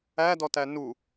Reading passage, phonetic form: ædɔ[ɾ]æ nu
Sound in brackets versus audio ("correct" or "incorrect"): incorrect